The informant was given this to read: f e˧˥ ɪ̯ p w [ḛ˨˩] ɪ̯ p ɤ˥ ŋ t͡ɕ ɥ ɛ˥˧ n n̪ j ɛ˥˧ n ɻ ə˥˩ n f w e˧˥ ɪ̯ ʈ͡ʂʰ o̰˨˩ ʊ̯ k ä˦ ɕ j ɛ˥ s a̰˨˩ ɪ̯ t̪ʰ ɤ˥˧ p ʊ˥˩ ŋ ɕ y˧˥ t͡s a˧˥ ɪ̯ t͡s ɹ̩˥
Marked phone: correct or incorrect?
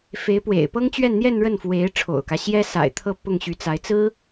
correct